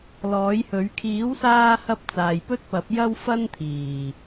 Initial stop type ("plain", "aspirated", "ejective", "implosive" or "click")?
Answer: aspirated